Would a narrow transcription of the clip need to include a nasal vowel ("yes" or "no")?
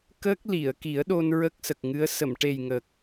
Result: no